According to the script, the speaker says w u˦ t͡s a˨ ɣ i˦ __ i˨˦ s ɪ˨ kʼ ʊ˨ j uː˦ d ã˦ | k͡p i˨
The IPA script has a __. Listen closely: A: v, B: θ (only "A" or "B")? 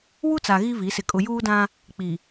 A